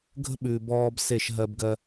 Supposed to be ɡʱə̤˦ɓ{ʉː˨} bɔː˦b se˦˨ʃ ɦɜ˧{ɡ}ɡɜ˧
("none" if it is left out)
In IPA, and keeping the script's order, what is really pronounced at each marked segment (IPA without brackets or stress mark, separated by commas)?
ʉː˨, b